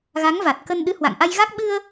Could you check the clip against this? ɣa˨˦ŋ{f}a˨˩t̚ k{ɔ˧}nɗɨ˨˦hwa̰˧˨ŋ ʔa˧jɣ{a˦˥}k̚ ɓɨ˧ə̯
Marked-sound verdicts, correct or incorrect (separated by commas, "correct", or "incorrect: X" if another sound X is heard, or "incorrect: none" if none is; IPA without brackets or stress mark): incorrect: v, incorrect: ə˧, correct